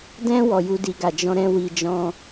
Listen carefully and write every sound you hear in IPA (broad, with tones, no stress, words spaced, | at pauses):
dɛ̃˦ wɔ˧ju˦di˧ɡa˨ d͡ʒɔ̃˧ɾɛ̃˧wi˨d͡ʒɔ̃˧